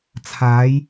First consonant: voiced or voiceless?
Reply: voiceless